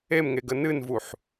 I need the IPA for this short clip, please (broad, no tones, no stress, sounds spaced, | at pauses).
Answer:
e m ŋ e ɡ ə n ɨ n v u ħ